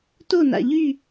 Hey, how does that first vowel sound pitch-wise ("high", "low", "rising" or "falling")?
falling